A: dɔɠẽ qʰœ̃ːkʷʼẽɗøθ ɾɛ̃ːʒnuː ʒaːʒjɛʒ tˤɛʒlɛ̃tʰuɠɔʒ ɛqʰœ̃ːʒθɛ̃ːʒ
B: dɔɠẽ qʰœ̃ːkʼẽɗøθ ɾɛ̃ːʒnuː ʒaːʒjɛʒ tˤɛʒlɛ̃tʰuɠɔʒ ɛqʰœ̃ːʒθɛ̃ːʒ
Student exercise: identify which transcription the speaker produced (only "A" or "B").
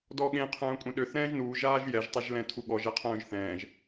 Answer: A